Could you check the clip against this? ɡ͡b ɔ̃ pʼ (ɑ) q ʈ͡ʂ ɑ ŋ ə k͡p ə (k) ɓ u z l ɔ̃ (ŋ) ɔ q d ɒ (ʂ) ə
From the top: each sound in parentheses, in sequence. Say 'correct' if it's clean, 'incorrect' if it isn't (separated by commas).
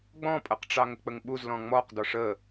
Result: incorrect, incorrect, incorrect, correct